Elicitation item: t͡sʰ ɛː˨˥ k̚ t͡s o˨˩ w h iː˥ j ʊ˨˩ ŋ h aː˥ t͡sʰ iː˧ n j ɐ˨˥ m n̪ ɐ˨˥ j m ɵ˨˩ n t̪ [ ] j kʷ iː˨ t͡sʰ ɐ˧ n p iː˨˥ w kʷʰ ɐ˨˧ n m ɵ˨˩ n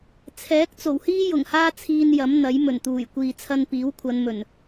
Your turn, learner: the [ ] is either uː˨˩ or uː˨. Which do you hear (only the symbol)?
uː˨˩